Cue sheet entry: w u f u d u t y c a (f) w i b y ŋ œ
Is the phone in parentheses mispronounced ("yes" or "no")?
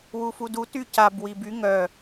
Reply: yes